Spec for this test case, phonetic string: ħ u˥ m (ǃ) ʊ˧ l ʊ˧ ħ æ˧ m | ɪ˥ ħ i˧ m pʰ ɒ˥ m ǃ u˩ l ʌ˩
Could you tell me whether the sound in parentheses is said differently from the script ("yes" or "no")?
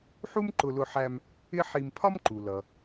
no